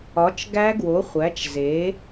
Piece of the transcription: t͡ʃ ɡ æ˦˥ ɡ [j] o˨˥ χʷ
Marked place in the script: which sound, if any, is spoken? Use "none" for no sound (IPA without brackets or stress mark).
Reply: w